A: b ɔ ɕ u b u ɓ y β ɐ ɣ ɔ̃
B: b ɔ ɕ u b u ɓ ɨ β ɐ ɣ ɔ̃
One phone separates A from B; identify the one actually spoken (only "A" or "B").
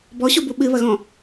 B